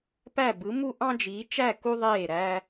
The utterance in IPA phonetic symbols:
pæ˥˧bɯ˧˥mu˥ ʔɑ̃˥d͡ʒiː˧˥t͡ʃæ˥˧ ku˥ðˤeː˥˧ ɾæ˥

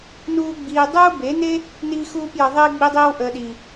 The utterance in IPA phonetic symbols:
nuː˦ɡ͡biː˧ dˤuː˦be˨˦ne˦ | niː˦xuː˦pjə˧ðˤiː˦ ɡ͡bi˧dˤiː˧wʔəː˨ ɗi˨

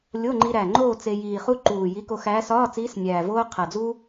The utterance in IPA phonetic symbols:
lʲo˧˥˧ŋ͡ǃi˧ɾæ˨˩ŋ͡ǃoː˥˧ t͡se˧jiː˨˩χu˥ ǃuː˨˩ ji˧˥ko˧xæː˧˥ sɒː˧˥˧t͡siː˧˥s nʲæː˨˩voː˥ qʰæ˨˩d͡zuː˥

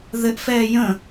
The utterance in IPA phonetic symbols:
ðɘʔfɛː jə̃

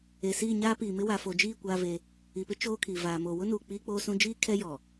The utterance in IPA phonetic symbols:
e˨siː˦˨ ɲaː˦piː˨mɪ˦ wa˨fo˨d͡ʒiː˦˨ kʷaː˦ve˦ | i˨pɪ˦ t͡ʃoː˦kʰi˨ vaː˨mo˨ wʊ˦nuː˨ k͡piː˦k͡poː˦sũ˦ d͡ʒiː˦ kʰɛ˦jɔ˨

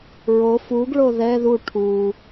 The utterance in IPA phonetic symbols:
ɹo fuɡɭo ðɛ ðu ʈʰu

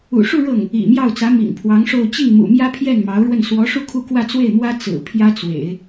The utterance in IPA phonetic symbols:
ṵ˨˩ʂu˥˧ ɻɤ˥˩ŋ | ḭ˨˩mjɑ˥˩ʊ̯t͡sä˧˥ mḭ˨˩ŋpʰwɑ˧˥ŋʂo˥˧ʊ̯ t͡ɕi˥˩ŋmṵ˨˩ mjä˥pʰjɛ˥˩n mɑ˧˥ʊ̯ɻwə˥˩n swɔ˧˥ʂu˥˧ kʰu˥˧kwä˥˧t͡swe˥˩ɪ̯mwä˥ t͡sɹ̩˨˩ pʰjä˥t͡swḛ˨˩˦ɪ̯

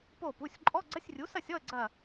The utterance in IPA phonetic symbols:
po˧˩pu˩˧˩sʲ ǃʼɔ˧˥˧ɡ͡ǀɐ˧˥˧sʲrʲu˩˥sɐ˥˨sʲ ɔ˥˨ə̯ ɡ͡ǀɐ˧˩

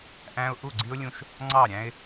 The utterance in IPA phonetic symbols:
ʔæ̃˦ʊ̯ ʔu˦˨ɡ͡ǀi˦ʊ̯lʲũ˦ʃ | ŋ͡ǀɑ˦˨ɾʲæ̃˦ɪ̯

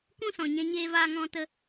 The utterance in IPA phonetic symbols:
kũ˦sɔ̃˨ɲɛ̃˧ ɲeː˦vaː˦ŋɔ̃˦tə˦

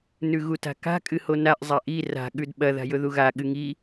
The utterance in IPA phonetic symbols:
nʉɣuta̤ka̤ kʼɨhonaʔ zˤaʔi ra̤ ɠʉdɓɐ ða̤jɵðuɣa ɠɨŋi

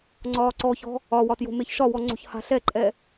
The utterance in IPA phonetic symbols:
ŋ͡ǀɒːǀɔçɔ̤ | ɒwɒ tjo̤meçʃɒwɔ ŋ͡ǀo̤çha̤ɬɛǃʼɛ

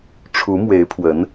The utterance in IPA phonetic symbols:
ʈ͡ʂʰu˧˥mwe˧˥ɪ̯pʰwə˧˥n

